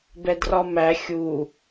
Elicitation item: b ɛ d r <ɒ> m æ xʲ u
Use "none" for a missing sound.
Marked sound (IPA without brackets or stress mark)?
ɒ